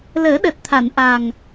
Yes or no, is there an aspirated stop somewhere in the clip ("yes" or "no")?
yes